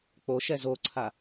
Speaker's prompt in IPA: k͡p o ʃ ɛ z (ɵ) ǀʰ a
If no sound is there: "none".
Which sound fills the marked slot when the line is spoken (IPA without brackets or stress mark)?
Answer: o